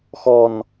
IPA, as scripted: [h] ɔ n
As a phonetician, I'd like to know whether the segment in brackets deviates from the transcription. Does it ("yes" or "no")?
yes